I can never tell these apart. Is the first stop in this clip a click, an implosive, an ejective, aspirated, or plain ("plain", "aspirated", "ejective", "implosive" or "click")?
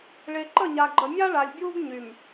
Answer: click